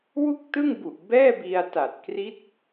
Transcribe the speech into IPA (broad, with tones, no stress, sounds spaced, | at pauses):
w u˥˩ k̚ t ɯ˥˩ ŋ b u˨˩ ʔ b ɛː˥˩ b i˧ a̯ t a˨˩ t̚ k r i˦˥ t̚